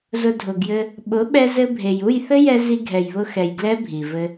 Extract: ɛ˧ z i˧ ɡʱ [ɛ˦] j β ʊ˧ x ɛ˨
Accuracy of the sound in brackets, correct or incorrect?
incorrect